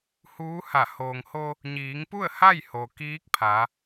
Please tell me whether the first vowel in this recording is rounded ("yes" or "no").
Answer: yes